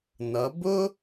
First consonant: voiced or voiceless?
voiced